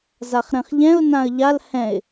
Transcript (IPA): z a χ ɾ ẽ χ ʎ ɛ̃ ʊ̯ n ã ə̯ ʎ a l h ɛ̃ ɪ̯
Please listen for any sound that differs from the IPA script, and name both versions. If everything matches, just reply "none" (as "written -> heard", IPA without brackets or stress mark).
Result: none